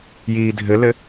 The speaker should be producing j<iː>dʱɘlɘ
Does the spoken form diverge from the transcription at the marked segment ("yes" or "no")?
no